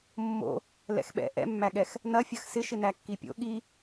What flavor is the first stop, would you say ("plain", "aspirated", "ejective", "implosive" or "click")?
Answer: implosive